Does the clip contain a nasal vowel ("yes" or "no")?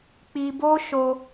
no